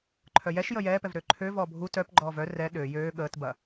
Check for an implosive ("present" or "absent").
present